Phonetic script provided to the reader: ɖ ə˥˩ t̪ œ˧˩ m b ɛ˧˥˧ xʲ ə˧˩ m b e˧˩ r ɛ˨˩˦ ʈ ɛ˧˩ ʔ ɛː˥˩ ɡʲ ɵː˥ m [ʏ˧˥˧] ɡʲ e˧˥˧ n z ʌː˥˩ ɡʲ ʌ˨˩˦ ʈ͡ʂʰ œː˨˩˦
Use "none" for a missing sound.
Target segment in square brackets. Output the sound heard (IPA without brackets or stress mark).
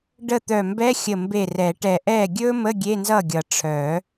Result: ə˧˥˧